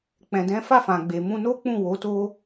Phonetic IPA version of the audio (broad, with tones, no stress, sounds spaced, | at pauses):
k͡p ɛ̃˨ d ɛ̃˨˦ f a˦˨ f ã˨ ɡ͡b e˨ m ũ˧ n o˦ k͡p ũ˦˨ w o˨˦ t o˦